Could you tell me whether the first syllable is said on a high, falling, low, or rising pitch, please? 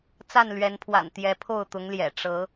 falling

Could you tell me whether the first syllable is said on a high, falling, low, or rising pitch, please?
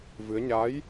rising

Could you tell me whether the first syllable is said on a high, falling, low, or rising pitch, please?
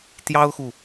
high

